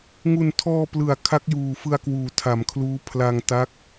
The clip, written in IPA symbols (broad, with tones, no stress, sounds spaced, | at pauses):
ŋ u˨˩ n tʰ ɔː˧ p l ɯ˩˦ a̯ kʰ a˦˥ k̚ j uː˨˩ f ɯ˧ a̯ k w uː˨˩ tʰ a˩˦ m kʰ l uː˦˥ pʰ l a˧ ŋ t a˦˥ k̚